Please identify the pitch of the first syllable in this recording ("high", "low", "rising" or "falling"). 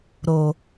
low